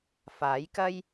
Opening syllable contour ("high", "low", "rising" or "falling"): rising